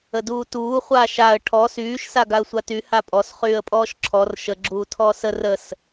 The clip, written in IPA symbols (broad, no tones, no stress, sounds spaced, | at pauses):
ə d uː t uː χʷ aː ʃ a ə̯ ʈʰ ɔ s yː ʃ s a ɡ a ə̯ sʷ a t y h a pʼ ɔ s χ yː ə̯ pʼ ɔː ʃ ǁʰ ɔ r ʃ ə ɡ͡ǁ uː tʰ ɔː s ə r ə s